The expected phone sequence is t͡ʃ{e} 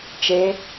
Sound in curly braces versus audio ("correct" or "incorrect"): correct